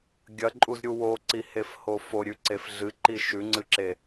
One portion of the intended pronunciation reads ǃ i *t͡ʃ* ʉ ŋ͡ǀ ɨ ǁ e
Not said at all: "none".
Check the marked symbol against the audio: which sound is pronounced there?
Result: ʃ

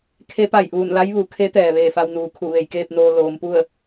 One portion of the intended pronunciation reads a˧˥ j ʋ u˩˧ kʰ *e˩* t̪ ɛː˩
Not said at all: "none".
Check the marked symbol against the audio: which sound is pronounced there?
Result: e˧˥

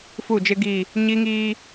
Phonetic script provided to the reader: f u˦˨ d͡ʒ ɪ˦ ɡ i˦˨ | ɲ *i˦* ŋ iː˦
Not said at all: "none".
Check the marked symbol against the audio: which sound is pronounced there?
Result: i˦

